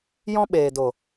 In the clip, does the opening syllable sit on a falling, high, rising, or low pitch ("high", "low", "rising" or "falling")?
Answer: high